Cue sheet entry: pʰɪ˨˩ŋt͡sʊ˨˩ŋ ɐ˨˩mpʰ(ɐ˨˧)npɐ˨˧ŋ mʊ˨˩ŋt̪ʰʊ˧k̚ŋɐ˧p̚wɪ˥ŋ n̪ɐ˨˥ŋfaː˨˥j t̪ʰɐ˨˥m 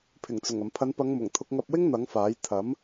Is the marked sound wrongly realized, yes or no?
no